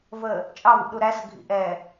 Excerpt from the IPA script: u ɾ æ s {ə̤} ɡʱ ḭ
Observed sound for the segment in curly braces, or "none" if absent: ə̤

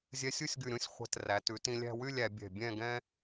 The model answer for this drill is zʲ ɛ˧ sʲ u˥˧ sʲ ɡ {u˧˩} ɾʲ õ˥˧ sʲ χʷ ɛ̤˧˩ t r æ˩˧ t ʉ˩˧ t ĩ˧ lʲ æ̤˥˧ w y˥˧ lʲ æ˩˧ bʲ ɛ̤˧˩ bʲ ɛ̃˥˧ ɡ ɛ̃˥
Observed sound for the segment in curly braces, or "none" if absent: ʉ˧˩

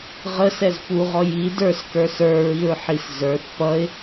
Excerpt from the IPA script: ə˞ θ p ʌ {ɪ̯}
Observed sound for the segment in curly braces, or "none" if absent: ɪ̯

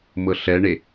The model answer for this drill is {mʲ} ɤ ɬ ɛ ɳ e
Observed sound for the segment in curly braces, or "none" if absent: m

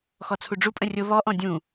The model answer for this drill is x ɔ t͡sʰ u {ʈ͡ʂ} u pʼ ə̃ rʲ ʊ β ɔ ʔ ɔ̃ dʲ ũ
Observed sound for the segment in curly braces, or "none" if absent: ɖ͡ʐ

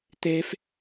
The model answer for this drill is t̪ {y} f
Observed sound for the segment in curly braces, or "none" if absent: e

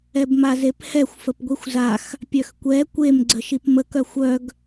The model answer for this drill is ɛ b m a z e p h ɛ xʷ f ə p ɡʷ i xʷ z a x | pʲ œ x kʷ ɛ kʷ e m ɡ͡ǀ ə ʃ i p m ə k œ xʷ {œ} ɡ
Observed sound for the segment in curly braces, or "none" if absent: œ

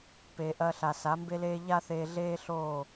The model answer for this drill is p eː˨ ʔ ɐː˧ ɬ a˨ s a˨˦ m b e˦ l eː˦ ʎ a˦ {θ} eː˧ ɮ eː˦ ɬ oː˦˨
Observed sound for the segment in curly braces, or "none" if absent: θ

